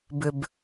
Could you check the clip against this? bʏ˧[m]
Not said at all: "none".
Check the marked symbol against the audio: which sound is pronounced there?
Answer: b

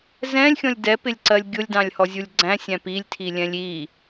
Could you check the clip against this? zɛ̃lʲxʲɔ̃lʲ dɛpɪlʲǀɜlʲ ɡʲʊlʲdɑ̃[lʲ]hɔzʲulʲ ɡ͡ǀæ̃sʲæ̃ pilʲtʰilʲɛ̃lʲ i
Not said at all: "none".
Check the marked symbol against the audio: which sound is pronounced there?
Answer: lʲ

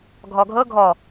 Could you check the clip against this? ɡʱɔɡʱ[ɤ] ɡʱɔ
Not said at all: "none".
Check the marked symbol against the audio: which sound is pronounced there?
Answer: ɤ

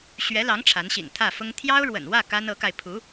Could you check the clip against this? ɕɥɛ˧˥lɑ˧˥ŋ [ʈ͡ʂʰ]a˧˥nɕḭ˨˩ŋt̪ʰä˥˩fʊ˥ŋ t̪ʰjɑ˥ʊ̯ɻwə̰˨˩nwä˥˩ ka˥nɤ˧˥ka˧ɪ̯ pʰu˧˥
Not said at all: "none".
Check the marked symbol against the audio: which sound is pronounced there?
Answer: ʈ͡ʂʰ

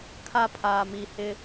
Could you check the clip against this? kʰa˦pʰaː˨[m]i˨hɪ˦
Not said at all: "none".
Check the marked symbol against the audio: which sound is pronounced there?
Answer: m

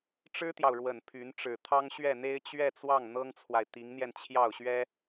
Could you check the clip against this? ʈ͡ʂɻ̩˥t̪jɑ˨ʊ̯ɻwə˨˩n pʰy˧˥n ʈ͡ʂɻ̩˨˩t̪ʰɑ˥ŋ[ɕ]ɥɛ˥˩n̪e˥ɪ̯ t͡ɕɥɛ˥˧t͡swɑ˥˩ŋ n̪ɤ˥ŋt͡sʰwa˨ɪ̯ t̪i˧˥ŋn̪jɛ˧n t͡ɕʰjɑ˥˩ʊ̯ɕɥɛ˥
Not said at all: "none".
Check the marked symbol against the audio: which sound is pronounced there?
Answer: ɕ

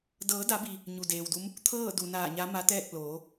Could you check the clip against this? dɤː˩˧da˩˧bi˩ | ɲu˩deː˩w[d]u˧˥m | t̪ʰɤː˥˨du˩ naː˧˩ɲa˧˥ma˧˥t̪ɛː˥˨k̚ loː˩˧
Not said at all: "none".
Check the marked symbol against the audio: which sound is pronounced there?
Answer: d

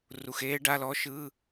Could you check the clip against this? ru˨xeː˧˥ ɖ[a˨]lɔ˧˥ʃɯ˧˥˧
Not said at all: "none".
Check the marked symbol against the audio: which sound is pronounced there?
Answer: a˧˥˧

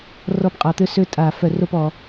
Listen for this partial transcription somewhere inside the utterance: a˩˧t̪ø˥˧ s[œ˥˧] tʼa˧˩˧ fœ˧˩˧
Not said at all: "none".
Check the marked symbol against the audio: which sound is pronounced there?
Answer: ø˥˧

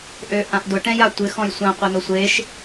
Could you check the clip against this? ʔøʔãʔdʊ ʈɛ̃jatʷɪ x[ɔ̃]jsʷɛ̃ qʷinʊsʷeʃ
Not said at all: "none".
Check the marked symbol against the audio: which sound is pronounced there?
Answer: ɔ̃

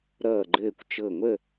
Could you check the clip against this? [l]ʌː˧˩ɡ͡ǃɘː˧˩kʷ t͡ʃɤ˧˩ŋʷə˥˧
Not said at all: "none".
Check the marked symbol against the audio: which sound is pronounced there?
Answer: ɾ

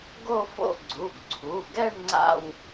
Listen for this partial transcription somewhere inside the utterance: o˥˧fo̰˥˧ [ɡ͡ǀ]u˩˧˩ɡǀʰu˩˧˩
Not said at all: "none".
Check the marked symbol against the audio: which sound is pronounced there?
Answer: ɡ͡ǀ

